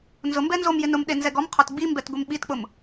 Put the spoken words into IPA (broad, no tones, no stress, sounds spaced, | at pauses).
n z ʊ m b ɛ n z o m j ɪ n ʊ m ɗ e n z ɛ ɡ ɔ m qʰ ɔ t ɡ͡b i m b ɛ t ɡʷ e m ɓ i t k͡p ʊ m